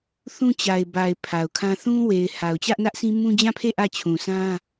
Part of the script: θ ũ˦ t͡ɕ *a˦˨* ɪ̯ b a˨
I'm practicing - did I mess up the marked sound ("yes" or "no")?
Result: yes